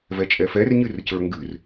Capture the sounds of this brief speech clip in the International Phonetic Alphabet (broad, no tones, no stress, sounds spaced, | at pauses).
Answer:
v ɛ t͡ʃʼ ɛ f ɛ r ɲ ɨ r c ə˞ ŋ ɡ ɨ r